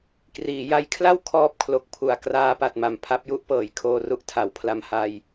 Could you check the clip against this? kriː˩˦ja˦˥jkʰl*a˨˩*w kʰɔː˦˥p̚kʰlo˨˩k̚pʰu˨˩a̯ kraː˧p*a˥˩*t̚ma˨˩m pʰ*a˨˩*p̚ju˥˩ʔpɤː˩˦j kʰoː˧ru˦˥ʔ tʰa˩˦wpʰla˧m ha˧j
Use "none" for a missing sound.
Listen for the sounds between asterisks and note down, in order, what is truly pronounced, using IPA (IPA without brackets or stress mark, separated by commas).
a˥˩, a˨˩, a˥˩